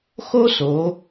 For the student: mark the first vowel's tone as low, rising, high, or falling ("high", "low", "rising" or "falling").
high